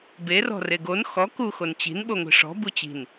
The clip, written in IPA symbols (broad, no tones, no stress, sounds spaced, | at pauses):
b e r ɔ̤ r e ɡ o n x ɔ k u x o n t͡ɕ i̤ n ɓ o ŋʷ i̤ ʂ ɔ̤ b u t͡ɕ i̤ n